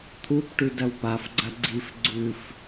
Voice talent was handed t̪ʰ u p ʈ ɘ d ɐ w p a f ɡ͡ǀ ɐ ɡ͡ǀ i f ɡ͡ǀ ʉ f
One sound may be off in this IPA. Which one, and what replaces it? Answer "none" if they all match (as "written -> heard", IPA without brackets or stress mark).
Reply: ɘ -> ʉ